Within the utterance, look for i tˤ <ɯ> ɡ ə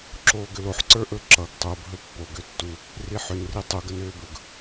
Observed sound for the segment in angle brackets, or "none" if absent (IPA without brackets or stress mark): u